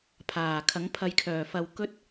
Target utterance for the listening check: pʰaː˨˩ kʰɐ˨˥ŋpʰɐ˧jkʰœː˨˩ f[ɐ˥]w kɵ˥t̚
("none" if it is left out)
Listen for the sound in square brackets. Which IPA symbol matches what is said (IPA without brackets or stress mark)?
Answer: ɐ˧